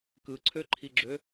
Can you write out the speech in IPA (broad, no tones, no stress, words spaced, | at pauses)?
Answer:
kɯǀʰøǃʰiɡ͡ǁø